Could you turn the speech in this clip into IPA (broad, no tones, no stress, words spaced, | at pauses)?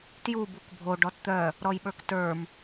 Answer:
tju bukbʱo ɖɔtt̪œ | ɾɔjɓə˞ktə˞m